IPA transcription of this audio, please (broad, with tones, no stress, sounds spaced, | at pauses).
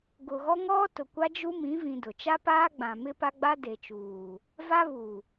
ɡ ʊ˨ ɣ ɔ˦ ŋ ɔ˦ t ʊ˨ kʷ a˦ d͡ʒ u˦ m ĩ˨˦ v ĩ˨ d ʊ˨ t͡ʃ a˦ p aː˦ ɡ͡b ã˨ m ɪ˦ p a˦ ɡ͡b a˦ d e˨ t͡ʃ uː˨ | v a˦ β u˨